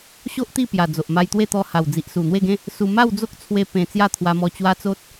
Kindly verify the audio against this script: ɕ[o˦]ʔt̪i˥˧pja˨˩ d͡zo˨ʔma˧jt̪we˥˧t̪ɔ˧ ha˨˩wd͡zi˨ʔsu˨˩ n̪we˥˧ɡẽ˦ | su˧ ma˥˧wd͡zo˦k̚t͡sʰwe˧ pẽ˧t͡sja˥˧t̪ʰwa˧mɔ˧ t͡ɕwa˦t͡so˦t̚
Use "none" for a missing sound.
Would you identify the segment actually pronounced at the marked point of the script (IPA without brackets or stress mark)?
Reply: o˦